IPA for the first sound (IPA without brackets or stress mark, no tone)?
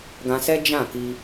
ɡ